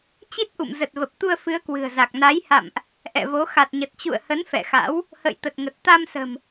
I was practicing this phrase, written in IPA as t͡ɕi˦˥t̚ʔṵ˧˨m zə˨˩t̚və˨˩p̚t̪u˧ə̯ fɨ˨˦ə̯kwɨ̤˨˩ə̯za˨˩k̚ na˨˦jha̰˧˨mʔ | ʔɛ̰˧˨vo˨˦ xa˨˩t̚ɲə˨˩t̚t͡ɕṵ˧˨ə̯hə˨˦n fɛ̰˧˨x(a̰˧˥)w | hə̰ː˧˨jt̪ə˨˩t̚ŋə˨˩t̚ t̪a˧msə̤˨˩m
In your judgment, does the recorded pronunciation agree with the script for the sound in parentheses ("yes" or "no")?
yes